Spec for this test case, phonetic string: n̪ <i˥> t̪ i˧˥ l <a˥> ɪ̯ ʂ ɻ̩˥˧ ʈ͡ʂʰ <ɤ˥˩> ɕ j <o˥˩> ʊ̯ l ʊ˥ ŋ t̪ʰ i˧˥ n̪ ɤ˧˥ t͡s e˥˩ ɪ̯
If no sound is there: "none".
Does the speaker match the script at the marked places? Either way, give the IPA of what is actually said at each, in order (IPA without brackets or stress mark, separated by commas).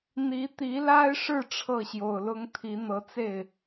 i˧˥, a˥, ɤ˥˩, o˨˩